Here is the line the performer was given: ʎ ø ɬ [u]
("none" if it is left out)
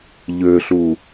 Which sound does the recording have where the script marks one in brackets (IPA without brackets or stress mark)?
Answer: u